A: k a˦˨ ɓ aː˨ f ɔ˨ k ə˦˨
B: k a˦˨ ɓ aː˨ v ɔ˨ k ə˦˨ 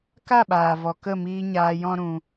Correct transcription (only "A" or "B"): B